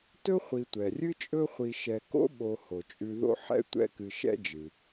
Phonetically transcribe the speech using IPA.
t ɵ˥ χʷ i˨ tʷ ɛ˩ rʲ ɨ˥ t͡ʃʼ ɵ˦ χʷ i˨ ʃ ɛ˨ k o̰˥ ɓ o˨ h o˩ t͡ʃʼ ʉ˨ ð o̰˦ ħ ɛ̰˦ tʷ ɛ̰˦ k ɨ˨ ʃ ɛ̰˦ d͡ʒ ɨ˩

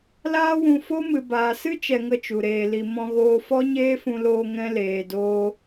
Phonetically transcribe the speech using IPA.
l aː˦ w ũ˧ f o˦ m ɨ˨ b aː˨ s ɨ˦ t͡ʃ ɛ˧ ŋ ə˧ t͡ʃ u˨ ɾ eː˨ l i˨ m ɔ̃˧ ɣ oː˧ f ɔ˦ ɲ eː˦ f ũ˧ l oː˧ ŋ ɛ̃˦ l eː˧ d oː˦

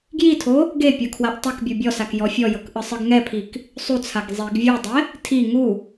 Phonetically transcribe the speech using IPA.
ɡ j i tʰ o | ɡ e pʲ ɤ kʰ w a ʔ tˤ ɯ k bʲ u bʲ ɔ s a k j ɔ fʲ ɔ j ɤ k ʔ ɯ sˤ ɯ ɡ ŋ ɛ pʰ i k | sˤ u t͡sʰ a ɡ zˤ i ɡ vʲ u dˤ ɛ | tʰ i ŋ u

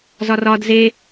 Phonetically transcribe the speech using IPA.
z ɒ r ɒ d z e

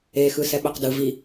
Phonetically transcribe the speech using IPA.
e x ɯ s ɛ ɓ œ q d ɯ v i

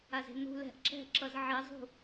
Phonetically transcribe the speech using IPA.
a z e̤ n ṳ l ɛ̤ ʔ ǁ ɛ̤ ǁ ʌ z ʕ e zˤ ṳ

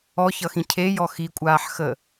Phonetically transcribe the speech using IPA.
ɔ ç ʌ x ĩ cʰ e j ɔ x i kʷʼ aː ħ x ə

